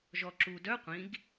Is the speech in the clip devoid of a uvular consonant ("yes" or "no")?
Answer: no